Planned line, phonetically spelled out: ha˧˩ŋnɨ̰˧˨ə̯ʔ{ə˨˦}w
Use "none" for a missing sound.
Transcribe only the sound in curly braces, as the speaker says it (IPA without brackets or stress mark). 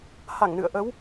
ə˨˦